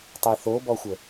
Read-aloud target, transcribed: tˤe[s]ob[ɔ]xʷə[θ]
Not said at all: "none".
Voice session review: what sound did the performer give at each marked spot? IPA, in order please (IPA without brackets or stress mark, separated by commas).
θ, ɔ, none